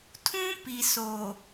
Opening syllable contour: high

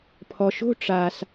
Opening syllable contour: low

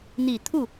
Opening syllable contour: low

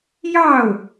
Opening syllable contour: falling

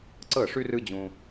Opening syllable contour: falling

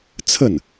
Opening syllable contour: falling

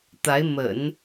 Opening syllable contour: rising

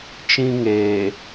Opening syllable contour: high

